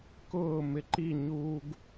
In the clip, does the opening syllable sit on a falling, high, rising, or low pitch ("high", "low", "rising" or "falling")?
falling